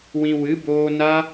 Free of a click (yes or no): yes